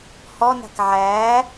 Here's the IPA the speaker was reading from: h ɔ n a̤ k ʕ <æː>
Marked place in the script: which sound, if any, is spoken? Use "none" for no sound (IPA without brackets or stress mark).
æː